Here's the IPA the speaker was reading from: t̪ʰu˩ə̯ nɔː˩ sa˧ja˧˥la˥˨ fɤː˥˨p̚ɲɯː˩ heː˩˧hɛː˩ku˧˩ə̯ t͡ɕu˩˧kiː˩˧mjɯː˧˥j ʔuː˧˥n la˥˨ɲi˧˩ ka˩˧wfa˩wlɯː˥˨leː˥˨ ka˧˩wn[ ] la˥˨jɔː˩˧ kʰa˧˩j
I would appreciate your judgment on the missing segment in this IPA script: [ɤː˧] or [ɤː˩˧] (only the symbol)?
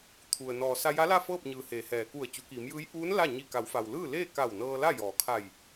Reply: ɤː˧